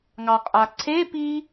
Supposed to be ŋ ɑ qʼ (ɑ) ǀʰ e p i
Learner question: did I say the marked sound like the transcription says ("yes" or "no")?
no